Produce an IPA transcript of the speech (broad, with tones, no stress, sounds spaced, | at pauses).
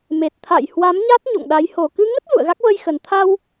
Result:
m e˨˩ t̚ t̪ʰ a̰˧˨ j h w a˨˦ m ɲ a˦˥ t̚ ɲ o̰˧˨ ŋ ɗ a˨˦ j h o˨˩ k ɨ˧ ŋ ə˦˥ t̚ z ṵ˧˨ ə̯ ɣ a˦˥ k̚ v ə˧ j x ə˨˩ n t̪ʰ a˧ w